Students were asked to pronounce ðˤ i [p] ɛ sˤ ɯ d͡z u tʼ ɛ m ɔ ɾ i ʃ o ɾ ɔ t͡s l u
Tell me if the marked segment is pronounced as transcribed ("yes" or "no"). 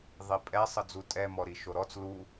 no